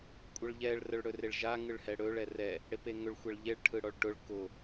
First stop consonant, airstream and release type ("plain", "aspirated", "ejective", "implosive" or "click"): ejective